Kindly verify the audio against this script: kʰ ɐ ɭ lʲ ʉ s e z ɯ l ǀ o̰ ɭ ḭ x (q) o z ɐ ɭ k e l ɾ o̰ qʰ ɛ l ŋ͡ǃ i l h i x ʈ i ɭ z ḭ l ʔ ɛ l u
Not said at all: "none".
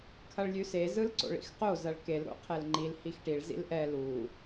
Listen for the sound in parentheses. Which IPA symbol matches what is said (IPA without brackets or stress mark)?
q